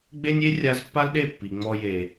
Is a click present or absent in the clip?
absent